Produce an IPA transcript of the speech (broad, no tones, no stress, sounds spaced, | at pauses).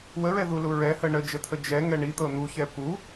w ə ɹ ɛ ð u l u ɹ ɛ h ə ɳ ə d͡ʒ ə t̪ʰ ə d͡ʒ ɛ ŋ ɛ ɳ i t̪ ɤ n̪ u ç ɛ p u